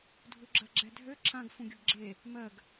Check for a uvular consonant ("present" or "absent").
absent